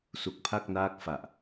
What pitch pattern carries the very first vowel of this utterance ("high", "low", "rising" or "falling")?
low